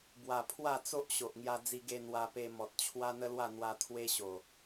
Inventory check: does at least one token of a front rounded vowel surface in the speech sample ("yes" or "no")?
no